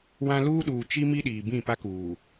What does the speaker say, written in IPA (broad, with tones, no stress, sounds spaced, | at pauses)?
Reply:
w ã˦ l uː˦ ɗ uː˨ t͡ʃ i˦ m i˦ ɗ iː˨ b ĩ˦˨ p a˦ k uː˨